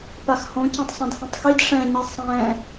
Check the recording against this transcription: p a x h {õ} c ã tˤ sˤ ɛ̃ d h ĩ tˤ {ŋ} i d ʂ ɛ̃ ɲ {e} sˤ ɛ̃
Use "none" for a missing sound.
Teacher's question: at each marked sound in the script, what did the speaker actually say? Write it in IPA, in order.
õ, x, i

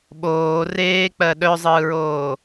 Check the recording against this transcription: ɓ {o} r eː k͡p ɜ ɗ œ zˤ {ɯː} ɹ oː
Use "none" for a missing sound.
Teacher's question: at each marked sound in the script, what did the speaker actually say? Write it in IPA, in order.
oː, ɯː

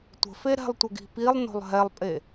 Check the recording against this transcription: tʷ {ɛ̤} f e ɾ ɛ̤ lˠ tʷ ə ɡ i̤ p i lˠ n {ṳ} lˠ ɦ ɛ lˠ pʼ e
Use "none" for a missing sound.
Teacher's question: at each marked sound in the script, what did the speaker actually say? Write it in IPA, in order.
ə̤, o̤

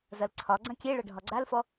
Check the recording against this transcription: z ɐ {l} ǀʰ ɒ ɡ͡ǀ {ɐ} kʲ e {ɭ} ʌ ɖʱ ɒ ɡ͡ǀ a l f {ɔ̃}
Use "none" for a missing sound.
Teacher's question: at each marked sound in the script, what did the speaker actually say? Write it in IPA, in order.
l, ɐ̃, ɭ, ɔ

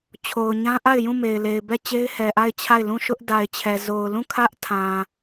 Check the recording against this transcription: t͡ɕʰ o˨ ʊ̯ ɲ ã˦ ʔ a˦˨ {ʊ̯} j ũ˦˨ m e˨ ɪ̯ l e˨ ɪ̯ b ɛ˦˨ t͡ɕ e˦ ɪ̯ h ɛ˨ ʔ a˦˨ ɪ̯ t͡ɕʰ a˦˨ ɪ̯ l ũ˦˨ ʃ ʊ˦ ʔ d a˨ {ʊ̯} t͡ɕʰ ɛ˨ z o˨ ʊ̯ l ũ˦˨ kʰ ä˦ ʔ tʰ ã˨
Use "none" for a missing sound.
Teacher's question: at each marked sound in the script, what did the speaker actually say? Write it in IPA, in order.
ɪ̯, ɪ̯

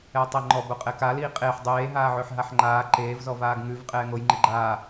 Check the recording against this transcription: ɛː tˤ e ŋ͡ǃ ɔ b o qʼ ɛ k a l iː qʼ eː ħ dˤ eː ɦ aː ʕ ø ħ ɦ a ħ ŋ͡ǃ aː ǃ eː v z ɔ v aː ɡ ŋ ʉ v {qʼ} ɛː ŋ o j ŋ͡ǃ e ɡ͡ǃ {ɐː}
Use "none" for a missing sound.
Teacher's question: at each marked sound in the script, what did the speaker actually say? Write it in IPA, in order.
qʼ, aː

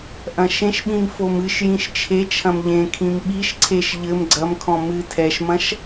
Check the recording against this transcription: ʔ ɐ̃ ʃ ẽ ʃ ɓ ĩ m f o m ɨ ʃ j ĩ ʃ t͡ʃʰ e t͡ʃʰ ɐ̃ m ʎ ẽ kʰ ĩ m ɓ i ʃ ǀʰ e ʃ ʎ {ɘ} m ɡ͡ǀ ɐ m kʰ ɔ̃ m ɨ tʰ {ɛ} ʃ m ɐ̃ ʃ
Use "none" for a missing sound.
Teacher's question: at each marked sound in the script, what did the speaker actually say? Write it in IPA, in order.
ɘ, ɛ

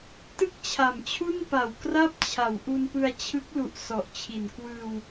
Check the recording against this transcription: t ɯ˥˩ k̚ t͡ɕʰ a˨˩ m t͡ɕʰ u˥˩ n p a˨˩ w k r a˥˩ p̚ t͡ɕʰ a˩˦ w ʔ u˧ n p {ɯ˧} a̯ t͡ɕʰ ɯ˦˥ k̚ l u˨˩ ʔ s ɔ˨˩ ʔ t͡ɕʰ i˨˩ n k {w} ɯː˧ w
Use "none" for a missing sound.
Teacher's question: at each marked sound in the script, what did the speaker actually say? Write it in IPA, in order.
ɯ˧, w

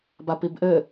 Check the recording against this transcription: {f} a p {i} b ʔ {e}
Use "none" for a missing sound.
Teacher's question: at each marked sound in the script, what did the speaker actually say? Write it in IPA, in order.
b, i, ɘ

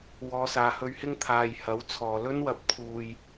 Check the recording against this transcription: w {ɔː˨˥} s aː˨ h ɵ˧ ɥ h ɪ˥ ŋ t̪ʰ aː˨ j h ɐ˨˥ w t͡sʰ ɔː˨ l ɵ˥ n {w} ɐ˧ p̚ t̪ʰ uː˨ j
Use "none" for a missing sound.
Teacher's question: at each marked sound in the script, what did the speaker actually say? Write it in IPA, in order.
ɔː˨˧, w

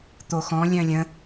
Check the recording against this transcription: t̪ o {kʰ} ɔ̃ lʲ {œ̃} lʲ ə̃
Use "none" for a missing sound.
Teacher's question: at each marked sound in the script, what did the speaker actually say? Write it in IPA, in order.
x, œ̃

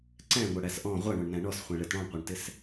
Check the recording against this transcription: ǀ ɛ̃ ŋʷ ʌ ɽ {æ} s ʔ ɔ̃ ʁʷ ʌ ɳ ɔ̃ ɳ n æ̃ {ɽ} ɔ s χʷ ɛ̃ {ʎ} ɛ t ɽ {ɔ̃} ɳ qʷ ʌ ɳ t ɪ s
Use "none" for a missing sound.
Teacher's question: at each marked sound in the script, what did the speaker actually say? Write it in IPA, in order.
æ, ɳ, ɭ, ɔ̃

